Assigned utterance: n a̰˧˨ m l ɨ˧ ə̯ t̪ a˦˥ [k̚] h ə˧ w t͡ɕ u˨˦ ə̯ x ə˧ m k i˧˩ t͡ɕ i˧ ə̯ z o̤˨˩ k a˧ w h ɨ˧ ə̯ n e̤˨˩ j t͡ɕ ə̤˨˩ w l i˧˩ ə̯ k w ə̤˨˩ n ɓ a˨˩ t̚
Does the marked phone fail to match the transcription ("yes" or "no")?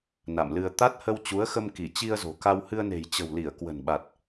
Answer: yes